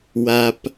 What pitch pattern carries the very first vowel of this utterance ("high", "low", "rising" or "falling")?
low